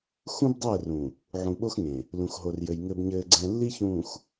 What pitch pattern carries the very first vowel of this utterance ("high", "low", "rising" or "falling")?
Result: high